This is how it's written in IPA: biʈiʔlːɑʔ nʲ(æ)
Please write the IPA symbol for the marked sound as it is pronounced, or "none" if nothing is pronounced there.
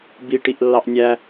æ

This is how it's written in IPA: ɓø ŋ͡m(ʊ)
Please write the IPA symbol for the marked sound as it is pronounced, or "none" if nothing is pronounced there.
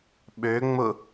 ʊ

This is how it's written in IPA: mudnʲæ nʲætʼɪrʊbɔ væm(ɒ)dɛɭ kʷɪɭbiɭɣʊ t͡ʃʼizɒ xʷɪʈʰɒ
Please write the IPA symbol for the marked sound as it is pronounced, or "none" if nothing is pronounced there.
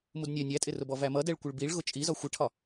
ʌ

